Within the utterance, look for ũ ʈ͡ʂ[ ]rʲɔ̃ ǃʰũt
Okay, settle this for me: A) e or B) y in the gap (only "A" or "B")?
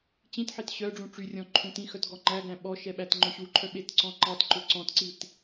B